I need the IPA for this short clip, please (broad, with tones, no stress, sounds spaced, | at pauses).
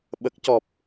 ɓ ə˨˩ k̚ c ɔ˨˩ p̚